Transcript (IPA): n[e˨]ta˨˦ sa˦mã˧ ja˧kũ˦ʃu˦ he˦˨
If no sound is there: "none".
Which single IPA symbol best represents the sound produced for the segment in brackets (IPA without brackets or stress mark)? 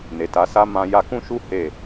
e˨